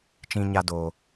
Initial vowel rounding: unrounded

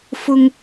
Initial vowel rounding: rounded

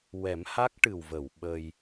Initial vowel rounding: unrounded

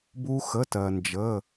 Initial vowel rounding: rounded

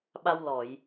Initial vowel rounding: unrounded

